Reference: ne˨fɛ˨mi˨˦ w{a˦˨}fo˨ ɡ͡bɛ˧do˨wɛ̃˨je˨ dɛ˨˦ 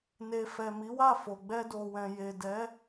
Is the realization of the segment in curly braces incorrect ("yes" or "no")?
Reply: no